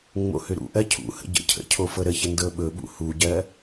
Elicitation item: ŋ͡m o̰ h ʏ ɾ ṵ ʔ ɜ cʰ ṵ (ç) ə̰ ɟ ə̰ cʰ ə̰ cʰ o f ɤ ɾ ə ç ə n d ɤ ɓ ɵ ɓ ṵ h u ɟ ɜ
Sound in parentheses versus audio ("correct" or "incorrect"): incorrect